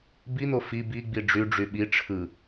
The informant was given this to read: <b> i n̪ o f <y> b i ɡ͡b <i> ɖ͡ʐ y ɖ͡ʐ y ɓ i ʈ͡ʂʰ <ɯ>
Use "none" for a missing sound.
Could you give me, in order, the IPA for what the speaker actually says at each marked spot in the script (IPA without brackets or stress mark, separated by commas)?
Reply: b, i, i, ɯ